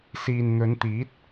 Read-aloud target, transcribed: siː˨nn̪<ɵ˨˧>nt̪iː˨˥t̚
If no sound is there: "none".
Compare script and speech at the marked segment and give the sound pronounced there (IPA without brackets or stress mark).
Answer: ɵ˨˧